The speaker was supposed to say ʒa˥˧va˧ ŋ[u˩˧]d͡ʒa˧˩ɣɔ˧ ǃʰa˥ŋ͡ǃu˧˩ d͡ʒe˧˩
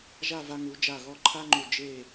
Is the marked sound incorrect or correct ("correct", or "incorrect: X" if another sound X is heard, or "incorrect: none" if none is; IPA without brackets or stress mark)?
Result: correct